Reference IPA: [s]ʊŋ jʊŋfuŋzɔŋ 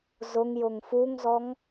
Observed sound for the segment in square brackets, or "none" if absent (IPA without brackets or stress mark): z